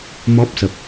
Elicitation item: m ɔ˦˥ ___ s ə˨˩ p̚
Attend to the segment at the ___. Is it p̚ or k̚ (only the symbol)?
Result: p̚